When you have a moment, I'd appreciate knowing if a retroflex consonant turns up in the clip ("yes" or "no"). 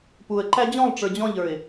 yes